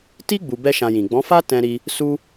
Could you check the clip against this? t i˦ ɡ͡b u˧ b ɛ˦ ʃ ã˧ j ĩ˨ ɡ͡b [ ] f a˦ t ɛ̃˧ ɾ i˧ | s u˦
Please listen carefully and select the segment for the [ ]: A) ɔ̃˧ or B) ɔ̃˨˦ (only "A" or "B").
B